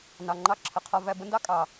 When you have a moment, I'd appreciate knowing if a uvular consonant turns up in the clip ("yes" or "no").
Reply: yes